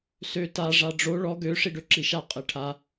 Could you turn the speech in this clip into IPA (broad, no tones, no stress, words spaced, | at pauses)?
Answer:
sø ta ʐaɖ͡ʐo ɭɔ ɡø ʂiɖøǁiʃa qʼeʈʰa